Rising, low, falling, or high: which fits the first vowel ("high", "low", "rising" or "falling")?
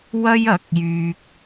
high